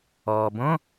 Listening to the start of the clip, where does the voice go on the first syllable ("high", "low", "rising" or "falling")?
low